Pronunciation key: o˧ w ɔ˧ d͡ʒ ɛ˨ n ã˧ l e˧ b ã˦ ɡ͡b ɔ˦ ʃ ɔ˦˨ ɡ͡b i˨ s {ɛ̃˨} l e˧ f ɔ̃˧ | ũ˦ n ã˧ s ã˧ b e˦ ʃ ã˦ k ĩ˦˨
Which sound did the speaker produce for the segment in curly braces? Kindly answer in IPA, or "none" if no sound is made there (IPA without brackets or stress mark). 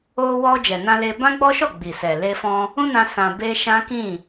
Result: ɛ˨